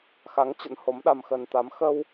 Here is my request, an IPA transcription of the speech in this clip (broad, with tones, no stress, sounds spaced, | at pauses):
x a˨˦ ŋ t͡ɕ ə̰˧˥ n h o˨˦ m ɗ a˧ m x ə˧ n t̪ a˨˦ m x ə˧ w